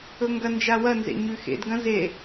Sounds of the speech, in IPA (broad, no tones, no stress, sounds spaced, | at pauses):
ɵ ŋ ɡ ɐ n d͡ʒ a w ɐ n z ḛ ɲ ʉ x ḛ d ɡ ɐ̃ z e